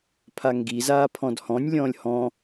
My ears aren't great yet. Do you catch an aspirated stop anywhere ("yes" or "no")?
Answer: yes